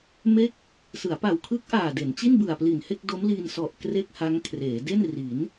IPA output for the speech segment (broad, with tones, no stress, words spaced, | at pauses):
me˥˩k̚ | sɯ˩˦a̯pa˨˩wkʰɯ˦˥k̚ʔaː˨˩ de˩˦n t͡ɕi˥˩nbɯ˨˩a̯pli˨˩nhe˥˩k̚ do˦˥mliː˧nsɔ˨˩ʔ kre˥˩k̚ha˦˥ŋkʰreː˩˦ de˥˩n riː˩˦n